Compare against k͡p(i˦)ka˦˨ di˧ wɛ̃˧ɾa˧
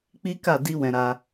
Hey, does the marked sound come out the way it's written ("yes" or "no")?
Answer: yes